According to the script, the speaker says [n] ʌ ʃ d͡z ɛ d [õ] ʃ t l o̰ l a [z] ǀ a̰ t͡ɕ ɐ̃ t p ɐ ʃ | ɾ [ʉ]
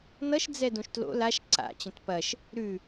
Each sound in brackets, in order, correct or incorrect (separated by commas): correct, correct, incorrect, correct